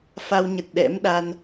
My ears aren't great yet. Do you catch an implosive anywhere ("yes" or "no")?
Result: yes